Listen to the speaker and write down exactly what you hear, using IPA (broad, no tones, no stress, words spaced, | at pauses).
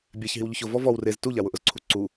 bʲaç ɦiwʎʊçʊ vɔvɔw rez tuʎawʊ ʔʊzǀʰuǀu